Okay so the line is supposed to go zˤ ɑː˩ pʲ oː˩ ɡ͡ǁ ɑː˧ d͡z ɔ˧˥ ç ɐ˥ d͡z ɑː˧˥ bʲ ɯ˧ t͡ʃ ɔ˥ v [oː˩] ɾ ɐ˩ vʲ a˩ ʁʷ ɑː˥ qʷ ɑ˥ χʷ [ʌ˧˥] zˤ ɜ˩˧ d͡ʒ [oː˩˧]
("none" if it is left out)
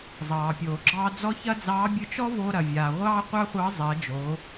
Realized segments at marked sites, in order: oː˧, ɑ˧˥, oː˩˧

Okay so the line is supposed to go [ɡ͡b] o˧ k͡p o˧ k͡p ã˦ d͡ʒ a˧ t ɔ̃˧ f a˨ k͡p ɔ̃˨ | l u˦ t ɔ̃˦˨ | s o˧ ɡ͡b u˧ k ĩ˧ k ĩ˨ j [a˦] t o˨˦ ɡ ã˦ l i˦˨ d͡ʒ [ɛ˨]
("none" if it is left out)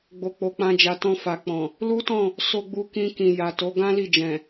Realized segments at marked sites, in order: ɡ͡b, a˨, ɛ̃˨

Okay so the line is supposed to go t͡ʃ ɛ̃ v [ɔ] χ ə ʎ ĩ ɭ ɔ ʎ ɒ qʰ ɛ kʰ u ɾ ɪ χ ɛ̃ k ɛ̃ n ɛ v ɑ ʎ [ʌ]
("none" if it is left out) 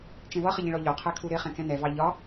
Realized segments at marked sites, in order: ʌ, ɒ

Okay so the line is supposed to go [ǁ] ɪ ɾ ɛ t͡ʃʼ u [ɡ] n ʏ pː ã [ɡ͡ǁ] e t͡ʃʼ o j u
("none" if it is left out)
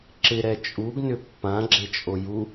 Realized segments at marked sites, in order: ǁ, ɡ, ɡ͡ǁ

